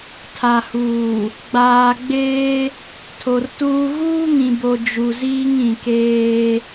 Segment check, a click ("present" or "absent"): absent